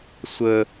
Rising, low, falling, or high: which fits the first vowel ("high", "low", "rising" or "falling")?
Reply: high